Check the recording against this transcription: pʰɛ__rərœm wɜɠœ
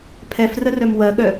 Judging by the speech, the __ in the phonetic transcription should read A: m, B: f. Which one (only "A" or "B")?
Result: B